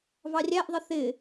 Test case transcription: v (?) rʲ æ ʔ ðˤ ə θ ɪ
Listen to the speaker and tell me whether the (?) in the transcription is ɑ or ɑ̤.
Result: ɑ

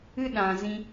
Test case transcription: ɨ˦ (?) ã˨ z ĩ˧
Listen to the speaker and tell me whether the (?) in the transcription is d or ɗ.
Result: ɗ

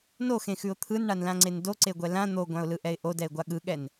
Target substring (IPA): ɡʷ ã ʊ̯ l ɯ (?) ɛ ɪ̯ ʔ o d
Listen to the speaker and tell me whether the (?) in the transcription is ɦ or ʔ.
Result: ʔ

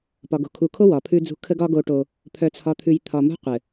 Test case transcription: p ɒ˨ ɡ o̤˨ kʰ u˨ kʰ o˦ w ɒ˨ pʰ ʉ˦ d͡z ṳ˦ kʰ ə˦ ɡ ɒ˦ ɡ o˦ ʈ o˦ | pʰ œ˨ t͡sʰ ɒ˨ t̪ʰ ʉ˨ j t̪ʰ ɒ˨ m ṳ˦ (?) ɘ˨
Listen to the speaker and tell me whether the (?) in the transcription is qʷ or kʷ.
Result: qʷ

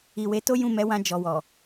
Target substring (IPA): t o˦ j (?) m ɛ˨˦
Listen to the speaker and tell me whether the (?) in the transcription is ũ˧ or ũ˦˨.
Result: ũ˦˨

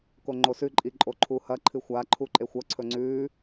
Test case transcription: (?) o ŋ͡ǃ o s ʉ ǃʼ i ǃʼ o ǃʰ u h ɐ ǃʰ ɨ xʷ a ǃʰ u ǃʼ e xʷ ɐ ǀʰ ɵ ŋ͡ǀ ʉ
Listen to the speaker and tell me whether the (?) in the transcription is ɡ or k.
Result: k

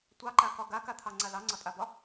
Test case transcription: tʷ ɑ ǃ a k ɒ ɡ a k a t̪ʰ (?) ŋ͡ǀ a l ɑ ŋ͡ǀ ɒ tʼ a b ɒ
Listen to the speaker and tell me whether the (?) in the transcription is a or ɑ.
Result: ɑ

